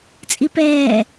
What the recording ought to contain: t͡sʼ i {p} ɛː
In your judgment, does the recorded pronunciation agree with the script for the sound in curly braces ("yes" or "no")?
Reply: yes